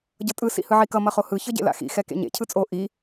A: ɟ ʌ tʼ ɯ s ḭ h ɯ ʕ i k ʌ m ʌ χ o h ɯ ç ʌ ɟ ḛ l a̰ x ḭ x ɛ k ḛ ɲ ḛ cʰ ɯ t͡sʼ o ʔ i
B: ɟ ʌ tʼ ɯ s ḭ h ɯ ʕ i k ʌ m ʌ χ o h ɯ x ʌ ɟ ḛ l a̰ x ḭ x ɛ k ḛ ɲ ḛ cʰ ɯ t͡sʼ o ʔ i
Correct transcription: A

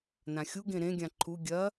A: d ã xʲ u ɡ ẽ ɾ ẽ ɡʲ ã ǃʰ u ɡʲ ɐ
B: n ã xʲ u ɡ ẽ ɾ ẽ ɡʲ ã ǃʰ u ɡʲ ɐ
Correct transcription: B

